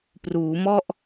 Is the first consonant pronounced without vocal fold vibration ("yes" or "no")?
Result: yes